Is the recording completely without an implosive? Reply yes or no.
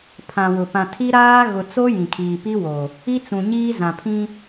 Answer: yes